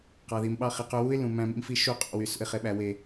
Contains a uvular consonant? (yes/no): yes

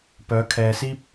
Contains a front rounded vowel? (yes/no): yes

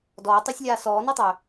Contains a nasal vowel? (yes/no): no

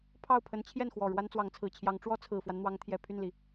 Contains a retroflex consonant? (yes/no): yes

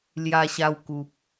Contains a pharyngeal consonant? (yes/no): no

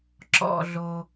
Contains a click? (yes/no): yes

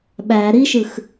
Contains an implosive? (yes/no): yes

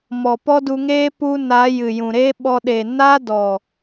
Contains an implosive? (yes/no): yes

